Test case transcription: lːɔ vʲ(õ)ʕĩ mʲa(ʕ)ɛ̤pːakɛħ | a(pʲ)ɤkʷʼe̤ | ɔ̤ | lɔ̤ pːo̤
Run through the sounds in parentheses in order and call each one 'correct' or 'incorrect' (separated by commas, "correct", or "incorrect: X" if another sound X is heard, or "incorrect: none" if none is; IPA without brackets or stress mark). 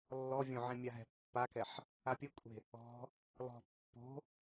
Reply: correct, incorrect: ɦ, correct